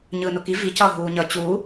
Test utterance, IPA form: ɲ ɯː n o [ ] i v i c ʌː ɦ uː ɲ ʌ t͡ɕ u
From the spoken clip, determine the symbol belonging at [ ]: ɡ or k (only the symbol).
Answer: k